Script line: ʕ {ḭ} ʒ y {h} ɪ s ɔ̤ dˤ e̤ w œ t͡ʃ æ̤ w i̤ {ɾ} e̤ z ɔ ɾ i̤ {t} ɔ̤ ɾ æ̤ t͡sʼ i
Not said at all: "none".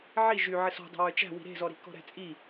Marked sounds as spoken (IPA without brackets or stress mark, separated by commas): i, ʕ, ɾ, k